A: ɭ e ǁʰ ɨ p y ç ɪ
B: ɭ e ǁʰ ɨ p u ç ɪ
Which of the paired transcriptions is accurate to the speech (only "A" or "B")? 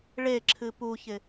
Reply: B